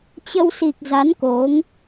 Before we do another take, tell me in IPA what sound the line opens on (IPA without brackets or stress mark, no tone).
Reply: t͡ɕ